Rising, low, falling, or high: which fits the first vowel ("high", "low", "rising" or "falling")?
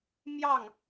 falling